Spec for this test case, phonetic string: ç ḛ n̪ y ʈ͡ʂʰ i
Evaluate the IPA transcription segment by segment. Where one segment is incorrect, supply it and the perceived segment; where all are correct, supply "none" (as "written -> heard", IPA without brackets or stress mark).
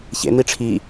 y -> i